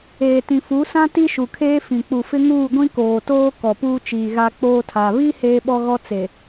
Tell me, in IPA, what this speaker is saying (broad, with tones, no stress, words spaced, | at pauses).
eː˨tĩ˨ fu˨˦sã˦ ti˦ʃu˨kʰeː˦fĩ˨ k͡pu˨fɪ˦ŋuː˦˨ɡʷĩ˦ koː˨ toː˦ kɔ˨puː˦t͡ʃiː˨ɣa˦ k͡poː˦tʰa˨ βi˦ heː˦ɓɔ˦ɣɔ˦ t͡se˨